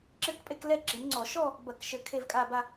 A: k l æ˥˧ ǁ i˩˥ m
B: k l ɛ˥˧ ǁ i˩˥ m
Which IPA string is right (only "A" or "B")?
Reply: B